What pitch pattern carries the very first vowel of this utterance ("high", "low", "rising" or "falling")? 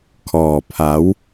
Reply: low